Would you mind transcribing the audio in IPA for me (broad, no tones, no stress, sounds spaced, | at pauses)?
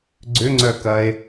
ɡ͡ǀ ʏ ŋ͡ǀ œ k ɐ e̯